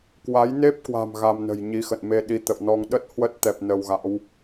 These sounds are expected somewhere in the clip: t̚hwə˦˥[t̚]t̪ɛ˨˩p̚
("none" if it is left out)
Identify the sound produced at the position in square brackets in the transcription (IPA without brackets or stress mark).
t̚